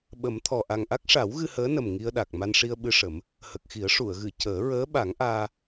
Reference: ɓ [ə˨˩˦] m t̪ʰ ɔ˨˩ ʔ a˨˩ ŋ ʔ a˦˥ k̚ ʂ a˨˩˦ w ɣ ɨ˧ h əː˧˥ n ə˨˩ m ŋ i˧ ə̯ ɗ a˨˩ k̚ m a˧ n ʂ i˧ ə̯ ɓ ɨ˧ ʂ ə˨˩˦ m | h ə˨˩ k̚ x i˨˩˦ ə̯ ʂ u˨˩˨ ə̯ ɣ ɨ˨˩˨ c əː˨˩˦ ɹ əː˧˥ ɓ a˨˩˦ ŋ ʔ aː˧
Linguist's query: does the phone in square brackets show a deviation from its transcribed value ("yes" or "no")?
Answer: no